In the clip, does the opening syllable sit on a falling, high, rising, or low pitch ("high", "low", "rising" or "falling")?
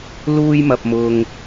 high